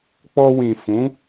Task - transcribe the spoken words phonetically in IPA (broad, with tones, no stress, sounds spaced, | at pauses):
k͡p ɔ˧ w ĩ˨ f ũ˨˦